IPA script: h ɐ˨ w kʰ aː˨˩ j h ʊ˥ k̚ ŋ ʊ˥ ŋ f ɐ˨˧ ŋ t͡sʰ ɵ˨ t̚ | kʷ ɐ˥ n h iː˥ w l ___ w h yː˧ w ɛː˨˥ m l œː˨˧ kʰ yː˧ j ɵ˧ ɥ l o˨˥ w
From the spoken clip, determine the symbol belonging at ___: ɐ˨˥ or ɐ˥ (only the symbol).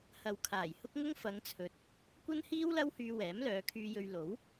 ɐ˥